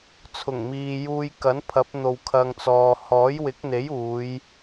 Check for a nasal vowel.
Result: absent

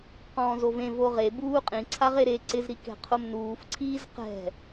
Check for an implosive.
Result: absent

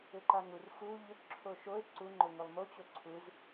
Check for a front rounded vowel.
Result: present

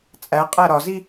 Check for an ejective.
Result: present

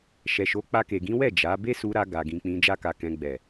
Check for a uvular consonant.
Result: absent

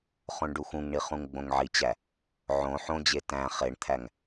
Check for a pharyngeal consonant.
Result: present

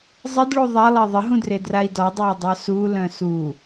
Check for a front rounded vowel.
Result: present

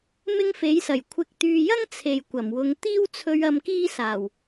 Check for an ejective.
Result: absent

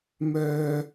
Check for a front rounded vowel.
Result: present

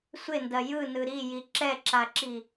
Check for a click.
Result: present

